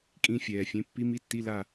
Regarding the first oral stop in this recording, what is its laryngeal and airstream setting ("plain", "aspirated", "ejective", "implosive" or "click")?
ejective